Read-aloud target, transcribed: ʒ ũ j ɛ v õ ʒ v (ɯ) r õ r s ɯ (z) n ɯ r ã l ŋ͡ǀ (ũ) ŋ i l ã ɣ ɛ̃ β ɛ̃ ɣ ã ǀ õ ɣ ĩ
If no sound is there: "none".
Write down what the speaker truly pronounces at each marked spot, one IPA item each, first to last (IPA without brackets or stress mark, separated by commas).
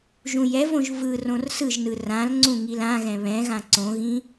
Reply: ɯ, ʒ, ũ